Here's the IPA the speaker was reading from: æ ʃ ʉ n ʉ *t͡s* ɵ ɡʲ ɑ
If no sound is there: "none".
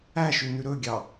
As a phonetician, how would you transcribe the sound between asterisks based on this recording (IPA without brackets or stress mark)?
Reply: ɾ